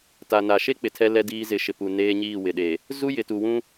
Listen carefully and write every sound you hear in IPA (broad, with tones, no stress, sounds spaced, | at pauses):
t a˨ n a˨ ʃ e˦ k͡p ɪ˨ tʰ ɛ˦ l ɛ˦ d iː˦ z ɪ˨˦ ʃ ɪ˨ p u˨ n eː˦ ɲ iː˦˨ w ɪ˨ ɗ e˨ | z u˦ j ɪ˨ t u˨ w ũ˦